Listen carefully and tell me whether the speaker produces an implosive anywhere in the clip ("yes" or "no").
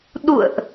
yes